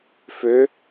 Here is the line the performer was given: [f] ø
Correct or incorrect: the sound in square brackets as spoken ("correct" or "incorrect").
correct